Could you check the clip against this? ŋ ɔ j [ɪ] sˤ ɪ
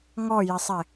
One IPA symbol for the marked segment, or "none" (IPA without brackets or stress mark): ɪ